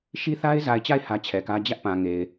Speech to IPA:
ʃ i˦ θ a˦ ɪ̯ z a˨ ɪ̯ t͡ɕ a˦˨ ɪ̯ h ä˦ t͡ɕʰ ɛ˨ k ä˦ d͡ʑ ä˦ ʔ p ã˨ ŋ e˨ ɪ̯

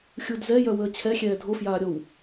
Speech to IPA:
xʲ u d z ɛ j œ w əː t͡ɕʰ ɛ xʲ ɛː dʱ o f j aː ɾʲ o w

